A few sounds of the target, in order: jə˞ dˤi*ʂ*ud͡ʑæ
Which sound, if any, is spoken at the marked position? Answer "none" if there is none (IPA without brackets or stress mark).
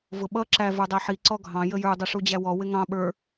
ʂ